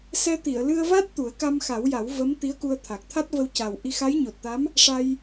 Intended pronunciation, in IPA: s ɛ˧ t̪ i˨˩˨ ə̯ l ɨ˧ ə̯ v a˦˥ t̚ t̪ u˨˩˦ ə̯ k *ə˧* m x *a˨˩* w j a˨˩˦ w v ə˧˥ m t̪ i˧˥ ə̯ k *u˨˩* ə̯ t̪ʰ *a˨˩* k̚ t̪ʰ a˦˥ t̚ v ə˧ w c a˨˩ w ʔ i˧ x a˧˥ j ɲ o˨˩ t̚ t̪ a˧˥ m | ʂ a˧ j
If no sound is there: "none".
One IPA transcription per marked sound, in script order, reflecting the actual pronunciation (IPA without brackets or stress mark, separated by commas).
a˧, a˨˩˦, u˧, a˨˩